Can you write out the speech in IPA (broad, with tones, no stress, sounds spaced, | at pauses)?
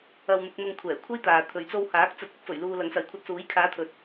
ɐ˧ w n̪ ʊ˧ k̚ n̪ ʊ˧ ŋ kʷʰ ɛː˨˩ kʷʰ ɐ˥ j t̪ aː˨ t̪ʰ ɵ˨ ɥ t͡s o˧ w h aː˨˥ k̚ t͡s ɐ˧ t̚ ɪ˧ k̚ f ɵ˨˩ ɥ l uː˨ l ɐ˨˥ ŋ s ɐ˨˧ j kʷʰ ɐ˧ t̚ s uː˨˥ j kʰ aː˨˧ t̪ʰ ɵ˨ t̚